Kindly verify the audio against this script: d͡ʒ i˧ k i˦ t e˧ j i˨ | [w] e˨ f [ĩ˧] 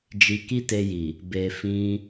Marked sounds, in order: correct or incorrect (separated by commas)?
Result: incorrect, correct